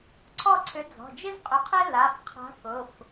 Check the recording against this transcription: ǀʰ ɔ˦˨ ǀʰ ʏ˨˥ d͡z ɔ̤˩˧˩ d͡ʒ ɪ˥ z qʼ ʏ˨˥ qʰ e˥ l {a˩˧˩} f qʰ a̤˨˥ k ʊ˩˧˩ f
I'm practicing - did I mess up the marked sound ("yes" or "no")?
no